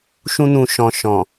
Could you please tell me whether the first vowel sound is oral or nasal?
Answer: nasal